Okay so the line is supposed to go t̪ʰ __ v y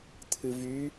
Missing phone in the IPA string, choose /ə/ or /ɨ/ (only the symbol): ɨ